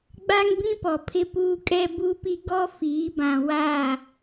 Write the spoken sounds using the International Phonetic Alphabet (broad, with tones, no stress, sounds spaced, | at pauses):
ɡ͡b a˦ ŋ b ĩ˦ p ɔ˨ pʰ ɪ˦ p uː˦ kʼ ɛ˦ b u˦ p i˦ ɡ ɔ˦ f iː˨˦ b ã˨ w a˦˨